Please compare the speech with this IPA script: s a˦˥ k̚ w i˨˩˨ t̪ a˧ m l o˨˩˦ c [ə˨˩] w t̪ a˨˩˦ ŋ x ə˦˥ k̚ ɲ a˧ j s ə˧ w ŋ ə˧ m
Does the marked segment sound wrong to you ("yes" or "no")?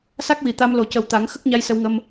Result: no